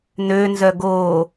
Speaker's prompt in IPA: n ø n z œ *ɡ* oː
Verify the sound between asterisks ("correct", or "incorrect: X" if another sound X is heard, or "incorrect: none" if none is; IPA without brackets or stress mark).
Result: correct